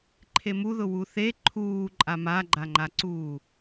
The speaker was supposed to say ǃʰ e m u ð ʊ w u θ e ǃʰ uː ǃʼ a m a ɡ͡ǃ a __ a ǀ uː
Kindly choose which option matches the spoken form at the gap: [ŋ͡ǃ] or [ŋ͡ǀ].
ŋ͡ǃ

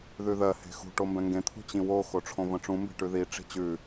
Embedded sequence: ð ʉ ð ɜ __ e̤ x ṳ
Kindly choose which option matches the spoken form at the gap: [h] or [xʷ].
h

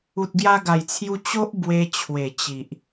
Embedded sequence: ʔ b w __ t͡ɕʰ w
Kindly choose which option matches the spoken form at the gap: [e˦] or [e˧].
e˧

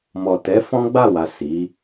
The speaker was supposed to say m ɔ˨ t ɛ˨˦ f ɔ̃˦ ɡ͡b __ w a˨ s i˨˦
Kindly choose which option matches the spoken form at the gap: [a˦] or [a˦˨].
a˦˨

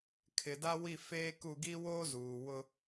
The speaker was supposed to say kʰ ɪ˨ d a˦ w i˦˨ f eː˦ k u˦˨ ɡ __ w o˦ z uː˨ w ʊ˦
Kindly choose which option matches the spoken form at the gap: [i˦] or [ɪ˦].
i˦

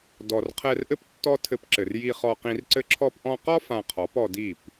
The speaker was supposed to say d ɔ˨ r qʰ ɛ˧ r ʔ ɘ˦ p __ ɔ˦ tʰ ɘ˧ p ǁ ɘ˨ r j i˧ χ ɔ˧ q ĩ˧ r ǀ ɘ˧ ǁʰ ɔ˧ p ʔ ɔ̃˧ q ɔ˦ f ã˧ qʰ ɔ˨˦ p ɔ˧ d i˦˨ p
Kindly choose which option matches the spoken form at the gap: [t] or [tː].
tː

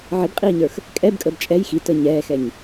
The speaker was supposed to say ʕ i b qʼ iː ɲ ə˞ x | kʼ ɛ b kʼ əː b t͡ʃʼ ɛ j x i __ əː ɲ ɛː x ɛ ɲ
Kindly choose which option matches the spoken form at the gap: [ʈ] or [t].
t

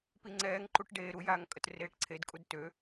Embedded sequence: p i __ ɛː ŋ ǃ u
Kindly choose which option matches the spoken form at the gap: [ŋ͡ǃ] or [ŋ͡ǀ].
ŋ͡ǀ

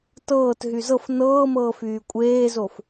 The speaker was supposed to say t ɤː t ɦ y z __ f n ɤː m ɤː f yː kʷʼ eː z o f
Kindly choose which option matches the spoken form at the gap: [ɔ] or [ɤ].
ɤ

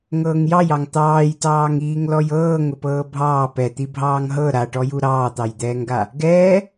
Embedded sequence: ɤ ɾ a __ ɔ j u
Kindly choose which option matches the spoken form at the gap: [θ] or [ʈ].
ʈ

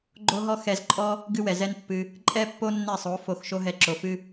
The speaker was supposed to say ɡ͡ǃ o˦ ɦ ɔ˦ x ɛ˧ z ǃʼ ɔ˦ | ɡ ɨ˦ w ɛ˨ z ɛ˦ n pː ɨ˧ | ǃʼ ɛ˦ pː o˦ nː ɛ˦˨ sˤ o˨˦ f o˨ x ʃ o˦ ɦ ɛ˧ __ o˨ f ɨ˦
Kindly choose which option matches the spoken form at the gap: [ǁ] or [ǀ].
ǁ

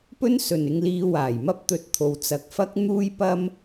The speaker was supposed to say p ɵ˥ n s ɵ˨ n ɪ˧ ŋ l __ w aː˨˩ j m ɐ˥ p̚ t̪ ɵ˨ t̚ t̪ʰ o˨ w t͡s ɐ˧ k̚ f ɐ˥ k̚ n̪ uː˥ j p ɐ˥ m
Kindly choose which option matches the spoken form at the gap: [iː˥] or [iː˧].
iː˧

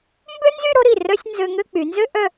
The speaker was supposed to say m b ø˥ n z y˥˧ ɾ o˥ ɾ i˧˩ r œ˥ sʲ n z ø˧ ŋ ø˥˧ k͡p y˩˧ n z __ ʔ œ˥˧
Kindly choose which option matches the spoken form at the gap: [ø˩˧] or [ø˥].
ø˥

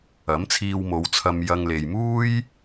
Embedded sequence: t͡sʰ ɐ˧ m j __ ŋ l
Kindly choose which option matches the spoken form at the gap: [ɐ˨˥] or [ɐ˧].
ɐ˧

